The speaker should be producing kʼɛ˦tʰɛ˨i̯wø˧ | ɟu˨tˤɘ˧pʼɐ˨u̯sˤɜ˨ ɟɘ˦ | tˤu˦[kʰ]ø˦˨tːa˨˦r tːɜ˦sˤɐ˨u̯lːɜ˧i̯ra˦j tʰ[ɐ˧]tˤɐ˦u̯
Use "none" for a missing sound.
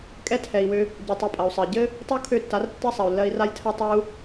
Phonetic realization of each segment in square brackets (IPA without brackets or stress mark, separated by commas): kʰ, ɐ˦